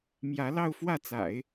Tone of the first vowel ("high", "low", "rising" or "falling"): rising